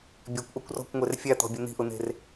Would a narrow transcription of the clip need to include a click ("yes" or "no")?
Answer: no